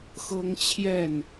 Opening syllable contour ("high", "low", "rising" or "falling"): high